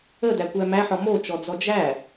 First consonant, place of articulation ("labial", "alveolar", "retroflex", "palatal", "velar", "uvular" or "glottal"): alveolar